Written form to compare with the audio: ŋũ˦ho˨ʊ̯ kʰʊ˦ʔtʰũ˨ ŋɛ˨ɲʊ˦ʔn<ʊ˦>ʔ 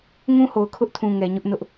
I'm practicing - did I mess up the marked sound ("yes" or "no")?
no